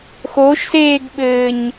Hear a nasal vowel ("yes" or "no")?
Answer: no